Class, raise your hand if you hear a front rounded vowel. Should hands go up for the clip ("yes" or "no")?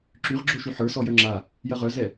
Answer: yes